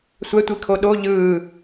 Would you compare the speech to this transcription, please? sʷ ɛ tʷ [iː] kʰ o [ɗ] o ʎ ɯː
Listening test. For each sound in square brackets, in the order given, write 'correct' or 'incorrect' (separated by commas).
incorrect, correct